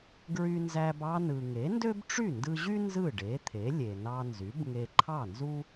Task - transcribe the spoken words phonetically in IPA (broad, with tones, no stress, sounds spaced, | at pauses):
ɡ ɹ y˧ n z æ˧ b ɑ˧ n ɯ˩ ŋ e˩˥ n d ø˥ b ʈ͡ʂ y˥˩ n d ɯ˧ ʑ y˥ n z ɯ˥˩ ɖ e˩˥ t̪ʰ e˩˥ lʲ e˩ n ɑ˧ n z y˩˥ b ŋ e˧ ǃʰ ɑ˥˩ n z u˥